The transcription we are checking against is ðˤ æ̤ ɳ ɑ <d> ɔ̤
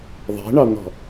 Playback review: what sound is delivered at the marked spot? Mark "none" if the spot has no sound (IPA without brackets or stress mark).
n̪